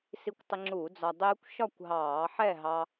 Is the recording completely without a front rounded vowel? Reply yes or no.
yes